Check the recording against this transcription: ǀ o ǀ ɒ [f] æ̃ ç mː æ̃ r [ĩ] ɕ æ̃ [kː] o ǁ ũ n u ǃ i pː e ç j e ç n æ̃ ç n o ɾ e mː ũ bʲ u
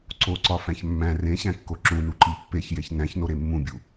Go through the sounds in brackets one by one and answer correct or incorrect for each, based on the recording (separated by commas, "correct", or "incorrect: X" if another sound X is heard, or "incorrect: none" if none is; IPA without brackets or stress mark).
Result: correct, incorrect: ẽ, correct